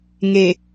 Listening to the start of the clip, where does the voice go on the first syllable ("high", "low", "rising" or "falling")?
low